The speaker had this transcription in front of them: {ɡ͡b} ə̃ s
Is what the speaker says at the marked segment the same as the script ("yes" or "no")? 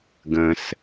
no